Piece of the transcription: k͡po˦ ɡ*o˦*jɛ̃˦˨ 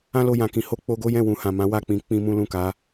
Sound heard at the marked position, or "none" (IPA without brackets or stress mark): o˦